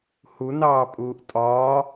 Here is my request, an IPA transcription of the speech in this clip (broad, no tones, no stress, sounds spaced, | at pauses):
h u n ɑː pʼ uː ʔ tʼ ɒː